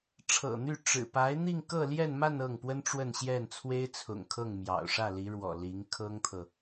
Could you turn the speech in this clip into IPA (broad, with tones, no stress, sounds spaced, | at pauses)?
ʈ͡ʂʰ ɤ̰˨˩ n̪ y˥˩ ʈ͡ʂ ɻ̩˨˩ p a˧˥ ɪ̯ n̪ i˥˧ ŋ k ɤ˥˧ l j ɛ˥˧ n m a˥˧ n ɤ˥˩ ŋ p w ə˥ n ʈ͡ʂ w ə˥˧ n ɕ j ɛ˥˩ n t͡sʰ w e˥ ɪ̯ t͡sʰ ʊ̰˨˩ ŋ kʰ ɤ˥˩ ŋ m j ɑ̰˨˩ ʊ̯ ʂ ä˥˩ l i˧˥ ɻ w ɔ̰˨˩ l i˧˥ ŋ kʰ ɤ˥ ŋ t̪ʰ ɤ˨